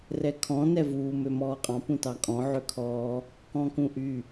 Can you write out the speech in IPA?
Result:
rɛkʰɔ̃ nɛvuː mømɔːqʼɑ̃ pũtɑkʼɔ̃ ʕøkʰɔː | kɔ̃kũʔy

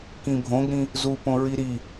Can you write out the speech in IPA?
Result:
kĩbʱõɡɾĩ | zupõ ɹiɾi

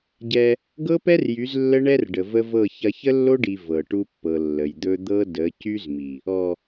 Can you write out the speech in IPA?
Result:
ɟɛ˦ | ɡɤ˦pɛ˦rjy˨˦z lːə˦ɳɛ˦rɖə˨ və˦vɤ˦˨ çɐ˦ çə˦lːo˦ɖi˨ vɤ˨ ʈu˦pːɤ˨ lːə˨jd̪ɵ˦ d̪ɤ˦ də˨˦cy˦zmi˨ | ɔ˨

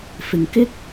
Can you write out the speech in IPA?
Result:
fɪ˨ŋkɪ˥k̚

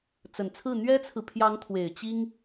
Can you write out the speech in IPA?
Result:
t͡sə˨˩nt͡sʰɹ̩˥˩ n̪ɥɛ˥t͡sʰɹ̩˨ pʰjɑ˧˥ŋt̪ʰwe˨˩ɪ̯ t͡ɕi˥ŋ

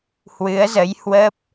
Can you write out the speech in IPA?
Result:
hwɨ˨˦ə̯zə˨˦jhwə˦˥p̚

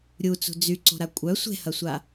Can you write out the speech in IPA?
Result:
ɾʲu t͡sṳd͡zyǀo̤ ɾakʷʼœ sʷe̤hɐsʷa

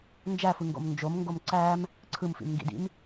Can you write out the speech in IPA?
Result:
nd͡ʒæfɯŋɡo̰m nd͡ʒomŋɡom ǀæm | ǀʰɯmfḭmŋɡḭdḭm

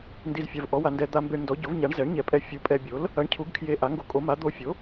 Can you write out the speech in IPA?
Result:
ndi˧z fʲa˧v ʔɔ˨˥wa˧ ndɛ˧ d̪a˧mbe˧ɳndɔ˨˥ ɟo˨˥vɲa˨˥ɳzɛ˨˥ɳɲɛ˧ pʼɛ˧fʲu˨˥pʼɛ˧bʲo˨˥l | ɐ˨˥ɳcʰu˨˥ɡkʰje˧ ʔa˨˥ŋɡo˧kʼo˨˥ma˨˥ d̪o˧ fʲo˨˥

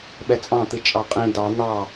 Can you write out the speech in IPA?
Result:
ɓɛt͡sʼɑ̃t̪ɨ t͡ʃʼɑqʼĩ dɑ n̪ɑ

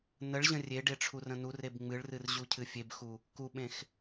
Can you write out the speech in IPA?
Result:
nəɭʑə̃ rʲeɖe ʈ͡ʂʰurə̃nureb ŋ͡mɨɭrɨr ʑucʰɨfʲebxu | kuɓẽx

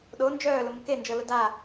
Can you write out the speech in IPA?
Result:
ɗo nd͡ʒœːlʊmʊ kend͡ʒɤlʊ da

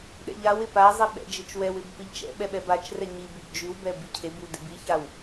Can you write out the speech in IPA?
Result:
ɗɛ̰ʎawɪ pazˤi ɓɛ̰d͡ʒɪt͡ʃwɛwɪb pɪʎt͡ʃɛ̰ɓɛ ɓɛbat͡ʃrɛ ɲibyb d͡ʒywbɛ bicʰebyw dɪbiçaw

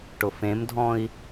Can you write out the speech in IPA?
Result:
ʈʊfẽmdʱɔ̃i̯

